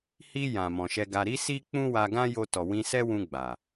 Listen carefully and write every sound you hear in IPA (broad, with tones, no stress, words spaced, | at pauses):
hi˧ jã˨mɔ̃˨ʃɛ˧ɡa˧ ɾi˦si˦ k͡pũ˦wa˧ɡã˦jo˧ tɔ˨wĩ˧ sɛ˦wũ˧ ɡ͡ba˨